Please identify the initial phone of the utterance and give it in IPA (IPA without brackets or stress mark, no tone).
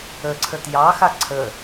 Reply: ə